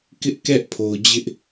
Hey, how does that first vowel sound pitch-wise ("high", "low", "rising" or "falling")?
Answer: high